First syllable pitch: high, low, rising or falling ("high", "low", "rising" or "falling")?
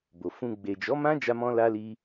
low